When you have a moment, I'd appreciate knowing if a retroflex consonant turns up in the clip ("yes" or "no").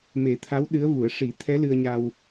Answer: yes